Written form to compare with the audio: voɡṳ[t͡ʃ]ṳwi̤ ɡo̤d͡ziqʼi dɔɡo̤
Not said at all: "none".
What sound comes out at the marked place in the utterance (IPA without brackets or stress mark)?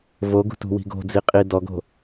t